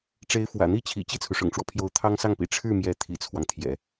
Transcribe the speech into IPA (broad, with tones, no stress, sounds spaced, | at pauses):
ʈ͡ʂ e˧˥ ɪ̯ f w ä̰˨˩ n̪ i˥˩ t͡ɕʰ ḭ˨˩ t͡ɕ i˥˩ t͡sʰ u˩ ʂ ʊ̰˨˩ ŋ ʈ͡ʂ w ɔ˦ pʰ j o˧˥ ʊ̯ t̪ʰ ɑ˥ ŋ s ɑ˥˩ ŋ p ḭ˨˩ ʈ͡ʂʰ ɻ̩˥˩ m j ɛ˧˥ t̪ʰ ḭ˨˩ t͡sʰ w ɑ˦ ŋ t̪ʰ j ɛ̰˨˩˦